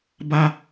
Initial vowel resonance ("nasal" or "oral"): oral